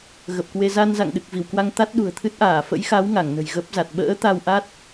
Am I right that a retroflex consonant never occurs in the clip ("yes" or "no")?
yes